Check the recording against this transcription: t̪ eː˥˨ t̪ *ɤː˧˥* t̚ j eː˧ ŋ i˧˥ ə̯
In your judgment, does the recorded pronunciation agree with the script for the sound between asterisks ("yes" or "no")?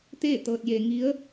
no